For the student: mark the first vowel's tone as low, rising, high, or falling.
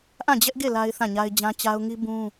falling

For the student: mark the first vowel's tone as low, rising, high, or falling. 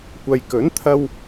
low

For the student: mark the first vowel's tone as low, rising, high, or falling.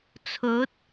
rising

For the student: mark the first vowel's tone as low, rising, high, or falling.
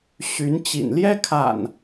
rising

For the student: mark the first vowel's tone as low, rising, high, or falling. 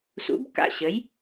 rising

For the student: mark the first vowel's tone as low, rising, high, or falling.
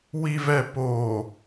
low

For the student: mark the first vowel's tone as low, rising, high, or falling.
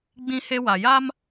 high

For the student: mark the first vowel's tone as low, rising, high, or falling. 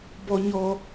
high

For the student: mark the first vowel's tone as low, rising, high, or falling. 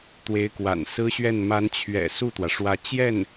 rising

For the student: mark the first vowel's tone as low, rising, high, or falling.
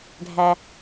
low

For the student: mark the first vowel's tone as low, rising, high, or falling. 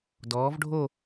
rising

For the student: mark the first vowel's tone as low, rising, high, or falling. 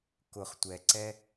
low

